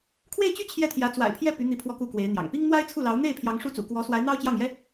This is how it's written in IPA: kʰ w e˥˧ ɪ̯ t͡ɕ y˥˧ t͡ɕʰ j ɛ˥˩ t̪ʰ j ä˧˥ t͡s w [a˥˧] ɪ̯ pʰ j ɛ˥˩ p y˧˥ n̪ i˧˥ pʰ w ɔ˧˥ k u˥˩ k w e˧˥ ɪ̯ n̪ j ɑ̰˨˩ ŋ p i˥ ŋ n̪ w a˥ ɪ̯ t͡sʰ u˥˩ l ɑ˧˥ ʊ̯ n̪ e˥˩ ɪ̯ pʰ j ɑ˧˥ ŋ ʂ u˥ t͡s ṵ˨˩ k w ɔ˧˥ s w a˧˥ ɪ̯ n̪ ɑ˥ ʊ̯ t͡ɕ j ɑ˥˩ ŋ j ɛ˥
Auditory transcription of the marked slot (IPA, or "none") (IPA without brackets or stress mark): a̰˨˩